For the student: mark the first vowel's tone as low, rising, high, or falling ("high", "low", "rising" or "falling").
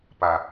low